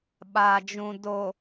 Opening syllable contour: low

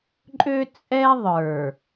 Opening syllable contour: high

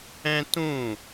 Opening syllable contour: high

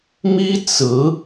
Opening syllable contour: high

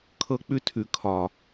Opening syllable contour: high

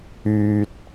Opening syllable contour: low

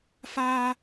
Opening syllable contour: high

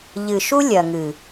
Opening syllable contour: low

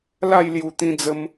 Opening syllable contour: falling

